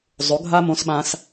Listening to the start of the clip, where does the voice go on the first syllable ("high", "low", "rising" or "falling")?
rising